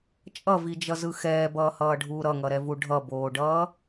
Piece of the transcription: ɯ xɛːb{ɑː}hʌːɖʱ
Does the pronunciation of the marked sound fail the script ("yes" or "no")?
yes